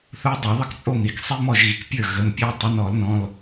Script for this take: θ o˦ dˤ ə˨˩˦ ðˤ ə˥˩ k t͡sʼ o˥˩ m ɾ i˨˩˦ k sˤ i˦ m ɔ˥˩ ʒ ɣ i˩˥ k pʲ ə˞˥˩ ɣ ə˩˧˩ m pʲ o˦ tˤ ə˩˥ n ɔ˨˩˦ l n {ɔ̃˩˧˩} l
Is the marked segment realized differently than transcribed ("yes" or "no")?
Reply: no